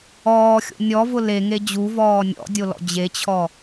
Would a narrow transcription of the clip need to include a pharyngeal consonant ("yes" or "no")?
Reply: no